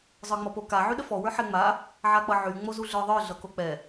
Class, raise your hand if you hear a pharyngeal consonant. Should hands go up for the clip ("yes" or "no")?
yes